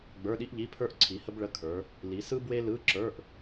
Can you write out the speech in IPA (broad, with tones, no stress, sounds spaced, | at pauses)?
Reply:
ɡ͡b ə˞˧˥˧ ɗ i˥ ʔ ʎ i˧˥˧ pʰ ə˞˥ ʔ ǀʰ i˨˦ h ə˥ b ɭ ə˧˥˧ kʰ ə˞˨˦ | l i˨˦ s ɯ˥ b w e˥ l ɯ˧˥˧ ǁ ə˞˧˥˧ ʔ